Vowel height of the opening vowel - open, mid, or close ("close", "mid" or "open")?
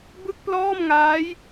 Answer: close